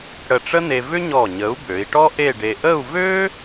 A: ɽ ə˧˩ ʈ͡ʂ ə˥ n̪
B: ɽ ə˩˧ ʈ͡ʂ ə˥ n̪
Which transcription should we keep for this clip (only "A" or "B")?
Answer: A